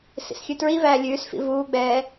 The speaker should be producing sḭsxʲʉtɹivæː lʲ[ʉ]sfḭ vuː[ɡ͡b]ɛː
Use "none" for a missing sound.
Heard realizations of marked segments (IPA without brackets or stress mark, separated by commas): ʉː, ɡ͡b